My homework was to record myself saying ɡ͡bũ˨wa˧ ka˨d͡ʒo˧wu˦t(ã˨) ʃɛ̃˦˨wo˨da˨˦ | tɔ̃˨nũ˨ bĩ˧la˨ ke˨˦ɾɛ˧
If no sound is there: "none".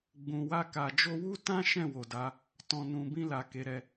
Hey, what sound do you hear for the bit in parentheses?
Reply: ã˦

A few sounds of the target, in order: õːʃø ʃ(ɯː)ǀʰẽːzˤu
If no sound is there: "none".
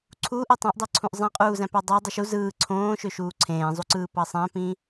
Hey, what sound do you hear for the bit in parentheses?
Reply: uː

